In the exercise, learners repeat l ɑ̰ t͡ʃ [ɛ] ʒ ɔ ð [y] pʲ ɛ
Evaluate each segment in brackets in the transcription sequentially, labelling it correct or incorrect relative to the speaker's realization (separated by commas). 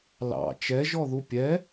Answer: correct, incorrect